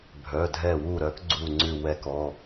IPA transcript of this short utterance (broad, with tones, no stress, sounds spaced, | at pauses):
bʱ œ˩˧˩ dʱ ɛ˧˩ w u˧˩ ɾ œ˨˦ k ɡ͡ǀ u˧˩ ŋ͡ǀ ʉ˧˩ w ɛ˧˩ k ɔ˩˧˩